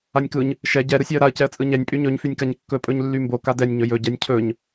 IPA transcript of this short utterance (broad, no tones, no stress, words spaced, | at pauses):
anʲkɯɲ | ʃɛ ɟɛ ɾɯsʲaə̯ɾaə̯ cɛə̯t͡sʼɯɲɛnʲ pʼyɲɵɲ fynʲkaɲkːɵ pʼɵɲlːymbo kadɛnʲ ɲɵjɵ ɟɛnʲcʰɵɲ